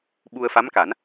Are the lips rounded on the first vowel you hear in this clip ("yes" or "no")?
yes